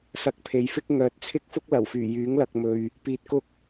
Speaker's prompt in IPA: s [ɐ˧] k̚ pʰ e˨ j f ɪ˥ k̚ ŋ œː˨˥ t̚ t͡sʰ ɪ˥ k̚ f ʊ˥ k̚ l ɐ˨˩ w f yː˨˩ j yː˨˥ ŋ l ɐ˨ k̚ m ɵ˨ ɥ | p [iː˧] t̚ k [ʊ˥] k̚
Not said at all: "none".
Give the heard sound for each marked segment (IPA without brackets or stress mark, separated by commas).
ɐ˧, iː˧, ʊ˥